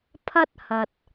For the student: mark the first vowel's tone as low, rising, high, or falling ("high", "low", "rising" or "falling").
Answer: high